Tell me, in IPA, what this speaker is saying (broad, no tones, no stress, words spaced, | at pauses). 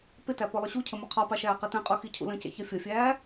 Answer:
pɪtæ pɔlˠʊɕucʰə mʊqʰɒpɑ ʃæːqitɛ̃qʼu xicʰṵlə̃cɛ̰ çʌfʲʌfʲæː